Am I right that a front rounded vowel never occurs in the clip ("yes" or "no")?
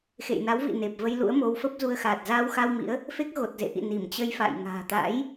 yes